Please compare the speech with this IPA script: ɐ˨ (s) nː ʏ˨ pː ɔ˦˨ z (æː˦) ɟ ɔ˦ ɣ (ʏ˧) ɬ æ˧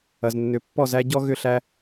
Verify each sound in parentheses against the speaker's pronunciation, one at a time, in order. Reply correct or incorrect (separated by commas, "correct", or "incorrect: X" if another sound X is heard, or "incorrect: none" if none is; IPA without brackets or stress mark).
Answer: incorrect: z, incorrect: æ˦, correct